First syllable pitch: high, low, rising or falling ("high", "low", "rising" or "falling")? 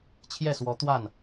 falling